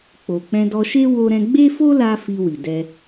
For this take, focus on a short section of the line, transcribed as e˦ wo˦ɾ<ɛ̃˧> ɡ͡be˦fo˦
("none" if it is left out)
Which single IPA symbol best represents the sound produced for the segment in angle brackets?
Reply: ɛ̃˦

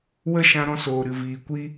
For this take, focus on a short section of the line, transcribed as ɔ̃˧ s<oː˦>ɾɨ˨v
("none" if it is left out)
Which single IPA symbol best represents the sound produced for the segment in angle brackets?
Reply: oː˨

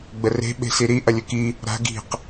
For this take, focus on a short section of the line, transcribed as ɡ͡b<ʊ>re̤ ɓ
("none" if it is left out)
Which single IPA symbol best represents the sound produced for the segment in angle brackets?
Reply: ə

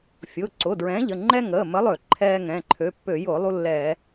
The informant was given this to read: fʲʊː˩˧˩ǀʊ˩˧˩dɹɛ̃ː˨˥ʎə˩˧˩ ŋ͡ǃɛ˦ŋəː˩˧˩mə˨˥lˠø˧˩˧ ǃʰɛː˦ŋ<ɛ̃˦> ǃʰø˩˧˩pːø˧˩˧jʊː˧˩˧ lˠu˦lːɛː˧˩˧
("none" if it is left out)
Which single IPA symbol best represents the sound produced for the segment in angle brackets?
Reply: ɛ̃˩˧˩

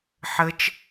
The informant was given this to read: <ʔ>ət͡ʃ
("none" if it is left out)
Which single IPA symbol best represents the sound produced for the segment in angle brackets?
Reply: ħ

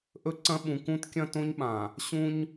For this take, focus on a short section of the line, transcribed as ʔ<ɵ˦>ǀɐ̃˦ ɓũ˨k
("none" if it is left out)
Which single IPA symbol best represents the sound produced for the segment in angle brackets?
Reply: ɵ˦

